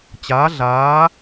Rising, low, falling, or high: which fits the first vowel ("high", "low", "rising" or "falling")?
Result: rising